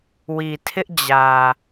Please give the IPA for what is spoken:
wi˨tʰɪ˦ʔd͡ʑä˨

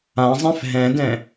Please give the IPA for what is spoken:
ãzˤɛ̃f ɦɛ̃dɛ̃

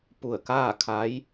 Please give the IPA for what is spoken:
pu˧˩ə̯kaː˥˨ kʰa˧˥j

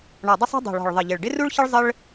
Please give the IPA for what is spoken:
ɳɔ˨˩dˤɪ˥sˤo̤˥ dˤo̤˨˩ɭɔ̤˨˩ɭ ðˤə˨˩ʎɪ˨˩ɭ ɖɪ˥ru˥ɭçə˥ɭ zˤə˥ɭ

